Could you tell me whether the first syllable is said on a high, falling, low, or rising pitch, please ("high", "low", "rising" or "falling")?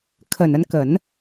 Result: low